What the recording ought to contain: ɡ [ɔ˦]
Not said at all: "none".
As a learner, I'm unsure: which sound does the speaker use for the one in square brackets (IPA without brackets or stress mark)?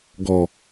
ɔ˨